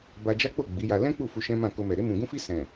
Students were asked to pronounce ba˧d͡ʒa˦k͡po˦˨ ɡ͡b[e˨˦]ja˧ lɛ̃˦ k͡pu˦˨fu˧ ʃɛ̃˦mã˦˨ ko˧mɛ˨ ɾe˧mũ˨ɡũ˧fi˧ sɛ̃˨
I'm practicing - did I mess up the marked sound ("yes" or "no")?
yes